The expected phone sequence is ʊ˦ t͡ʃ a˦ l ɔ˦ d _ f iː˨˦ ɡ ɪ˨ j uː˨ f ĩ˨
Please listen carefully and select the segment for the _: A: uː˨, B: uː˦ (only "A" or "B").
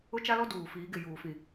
A